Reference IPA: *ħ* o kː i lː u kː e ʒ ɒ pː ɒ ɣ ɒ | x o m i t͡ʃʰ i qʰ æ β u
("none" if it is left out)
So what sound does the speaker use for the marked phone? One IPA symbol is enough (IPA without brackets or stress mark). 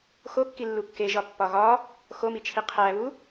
x